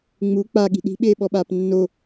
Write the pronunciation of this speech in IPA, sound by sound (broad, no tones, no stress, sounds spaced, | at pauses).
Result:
ŋ͡m u k͡p a ɠ i̤ ɗ i̤ ɓ eː ɓ ɔ ɓ aː p nː o